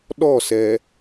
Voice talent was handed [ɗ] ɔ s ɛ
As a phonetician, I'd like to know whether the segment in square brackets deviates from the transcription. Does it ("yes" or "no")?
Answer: no